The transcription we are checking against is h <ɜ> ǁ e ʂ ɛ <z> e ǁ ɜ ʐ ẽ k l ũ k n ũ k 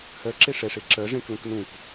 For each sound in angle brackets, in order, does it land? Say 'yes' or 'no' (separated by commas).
yes, no